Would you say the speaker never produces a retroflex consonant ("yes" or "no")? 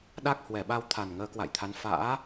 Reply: yes